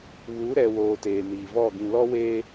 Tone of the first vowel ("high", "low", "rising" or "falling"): rising